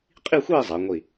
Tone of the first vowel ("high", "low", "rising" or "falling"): falling